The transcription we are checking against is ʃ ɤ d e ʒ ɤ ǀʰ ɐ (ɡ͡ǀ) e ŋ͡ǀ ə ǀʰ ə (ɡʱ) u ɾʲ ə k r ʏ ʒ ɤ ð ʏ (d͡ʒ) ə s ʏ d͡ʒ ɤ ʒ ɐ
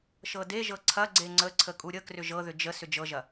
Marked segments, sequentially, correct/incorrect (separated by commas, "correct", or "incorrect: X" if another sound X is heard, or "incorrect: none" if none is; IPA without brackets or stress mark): correct, incorrect: kʼ, correct